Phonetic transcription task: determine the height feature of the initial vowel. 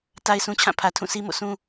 low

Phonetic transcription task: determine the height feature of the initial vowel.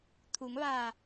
high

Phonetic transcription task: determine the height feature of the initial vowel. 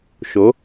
mid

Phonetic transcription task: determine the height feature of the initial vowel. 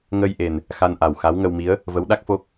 mid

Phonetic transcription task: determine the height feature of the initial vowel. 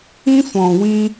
high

